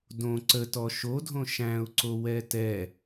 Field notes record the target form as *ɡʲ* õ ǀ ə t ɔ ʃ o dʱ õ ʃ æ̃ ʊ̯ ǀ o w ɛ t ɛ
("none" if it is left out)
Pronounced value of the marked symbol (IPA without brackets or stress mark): d